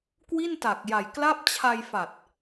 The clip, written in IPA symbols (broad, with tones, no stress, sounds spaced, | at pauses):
k w i˥˩ n t a˨˩ k̚ j a˨˩ j k l a˥˩ p̚ t͡ɕʰ a˧ j f a˨˩ t̚